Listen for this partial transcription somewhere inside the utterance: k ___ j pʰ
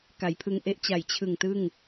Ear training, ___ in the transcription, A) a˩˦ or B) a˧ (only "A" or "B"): A